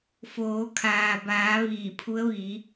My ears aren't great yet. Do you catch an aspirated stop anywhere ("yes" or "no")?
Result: yes